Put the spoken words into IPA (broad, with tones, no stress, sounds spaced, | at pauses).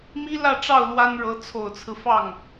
m i˥ l ä˥˧ ʈ͡ʂ ɑ˥˩ ʊ̯ l w a˥ n ɻ ɤ˧˥ t͡sʰ o˨˩ ʊ̯ t͡sʰ ɹ̩˦ f ɑ˥˩ ŋ